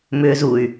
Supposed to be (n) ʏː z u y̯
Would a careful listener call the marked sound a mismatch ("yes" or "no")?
yes